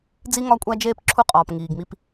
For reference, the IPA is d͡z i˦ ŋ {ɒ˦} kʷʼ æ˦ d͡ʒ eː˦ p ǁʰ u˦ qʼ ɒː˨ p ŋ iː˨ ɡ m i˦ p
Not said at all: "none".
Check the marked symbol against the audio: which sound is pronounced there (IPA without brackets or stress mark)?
ɒ˦